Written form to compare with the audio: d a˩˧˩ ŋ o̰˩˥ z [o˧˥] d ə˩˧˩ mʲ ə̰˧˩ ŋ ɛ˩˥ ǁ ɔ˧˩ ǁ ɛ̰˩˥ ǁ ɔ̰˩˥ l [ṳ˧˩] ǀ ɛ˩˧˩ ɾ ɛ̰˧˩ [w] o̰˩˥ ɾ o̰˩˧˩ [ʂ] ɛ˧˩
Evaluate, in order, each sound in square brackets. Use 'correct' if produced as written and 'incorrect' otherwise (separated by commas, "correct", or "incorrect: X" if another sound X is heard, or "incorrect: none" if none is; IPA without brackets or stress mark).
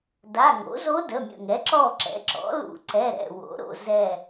correct, incorrect: ṵ˧˩, correct, incorrect: z